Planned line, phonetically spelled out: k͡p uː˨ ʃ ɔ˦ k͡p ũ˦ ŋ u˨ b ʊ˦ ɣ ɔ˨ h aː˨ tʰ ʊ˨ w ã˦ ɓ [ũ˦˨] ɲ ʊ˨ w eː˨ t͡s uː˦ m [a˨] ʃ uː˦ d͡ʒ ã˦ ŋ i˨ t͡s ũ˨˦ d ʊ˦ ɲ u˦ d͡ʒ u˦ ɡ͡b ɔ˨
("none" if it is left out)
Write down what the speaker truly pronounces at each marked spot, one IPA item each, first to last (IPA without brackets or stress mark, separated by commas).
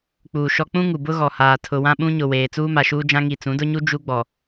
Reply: ũ˦, a˨